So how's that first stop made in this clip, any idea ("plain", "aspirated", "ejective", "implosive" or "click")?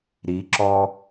click